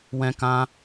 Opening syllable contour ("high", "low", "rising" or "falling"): high